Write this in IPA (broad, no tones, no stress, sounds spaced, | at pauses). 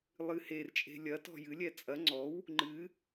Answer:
lˠ ɨ h e r t͡ʃʼ e̤ lʲ ɐ t ɔ̤ j ɨ lʲ ɛ t͡sʼ ɐ ŋ͡ǀ ɔ w | ŋ͡ǃ ɨ